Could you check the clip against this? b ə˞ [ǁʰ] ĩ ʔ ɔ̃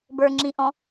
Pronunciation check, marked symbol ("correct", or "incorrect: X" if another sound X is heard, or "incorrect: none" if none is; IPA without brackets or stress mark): incorrect: ŋ͡ǁ